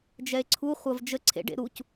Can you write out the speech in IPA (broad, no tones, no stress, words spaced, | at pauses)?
d͡ʒɛe̯ǀʰu χʷɐvd͡ʒə ǀʰḛɖḛ ɾuc